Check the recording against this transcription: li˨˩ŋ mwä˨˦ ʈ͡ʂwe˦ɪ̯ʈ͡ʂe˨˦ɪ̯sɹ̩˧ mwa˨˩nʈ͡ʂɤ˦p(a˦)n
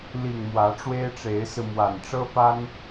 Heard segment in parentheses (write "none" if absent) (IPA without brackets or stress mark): a˦